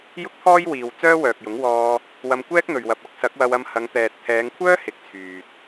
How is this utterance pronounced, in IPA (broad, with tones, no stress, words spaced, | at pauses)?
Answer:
jʊ˥k̚t̪ʰɔː˥jwiː˨w t͡sœː˥wœː˨k̚jʊ˨˥ŋ wɔː˧ | wɐ˧mkʷɛː˥k̚n̪ɵ˨ɥ wɐ˨p̚ɐ˧k̚ sɐ˨˥k̚wɐ˧wɐ˧m hɐ˨˧ŋt̪ɛː˨t̚t̪ʰɛː˨˧ŋkʷʰœː˥ hɪ˨˥k̚ t͡sʰyː˨t̚